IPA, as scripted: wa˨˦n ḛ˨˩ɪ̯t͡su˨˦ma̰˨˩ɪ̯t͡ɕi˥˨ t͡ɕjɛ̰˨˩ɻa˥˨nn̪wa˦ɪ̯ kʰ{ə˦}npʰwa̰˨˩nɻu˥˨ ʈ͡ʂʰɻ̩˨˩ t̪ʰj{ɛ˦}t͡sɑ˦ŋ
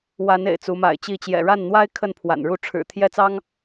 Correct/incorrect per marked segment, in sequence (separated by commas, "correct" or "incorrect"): incorrect, incorrect